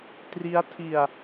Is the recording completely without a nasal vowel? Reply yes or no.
yes